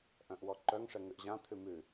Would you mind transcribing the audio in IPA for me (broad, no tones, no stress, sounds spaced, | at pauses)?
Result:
ʔ œ̃ ʔ w ɔ ǃ œ ŋ ʂ ɛ ŋ ʉ ʔ ʑ ã t̪ʰ ʉ m ʉ